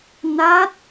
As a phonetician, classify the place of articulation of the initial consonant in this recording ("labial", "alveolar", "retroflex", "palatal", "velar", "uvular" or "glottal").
alveolar